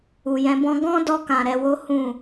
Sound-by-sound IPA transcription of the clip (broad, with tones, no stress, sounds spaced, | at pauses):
u˨ j ɛ̃˧ b ɔ̃˦ ɡ ɔ̃˦ d ɔ˧ k ã˨ ɾ ɛ˧ w o˦ h ũ˦˨